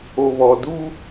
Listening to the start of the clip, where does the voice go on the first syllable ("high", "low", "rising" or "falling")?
low